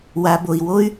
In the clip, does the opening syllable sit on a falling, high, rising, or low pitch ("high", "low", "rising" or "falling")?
low